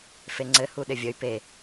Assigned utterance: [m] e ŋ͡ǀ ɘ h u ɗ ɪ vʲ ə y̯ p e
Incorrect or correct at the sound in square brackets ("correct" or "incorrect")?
incorrect